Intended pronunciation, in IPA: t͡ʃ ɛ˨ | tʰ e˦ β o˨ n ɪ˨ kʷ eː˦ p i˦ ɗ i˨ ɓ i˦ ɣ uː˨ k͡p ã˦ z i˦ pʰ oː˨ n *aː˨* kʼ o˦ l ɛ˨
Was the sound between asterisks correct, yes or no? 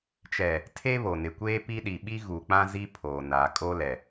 yes